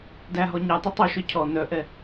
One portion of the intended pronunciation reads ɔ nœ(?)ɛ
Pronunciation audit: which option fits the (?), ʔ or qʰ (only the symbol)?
ʔ